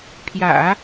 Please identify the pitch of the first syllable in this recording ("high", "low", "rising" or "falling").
low